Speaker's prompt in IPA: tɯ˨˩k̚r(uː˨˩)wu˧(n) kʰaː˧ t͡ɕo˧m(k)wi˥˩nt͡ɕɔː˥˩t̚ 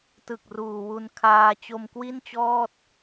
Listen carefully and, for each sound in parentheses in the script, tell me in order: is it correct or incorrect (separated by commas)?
correct, correct, correct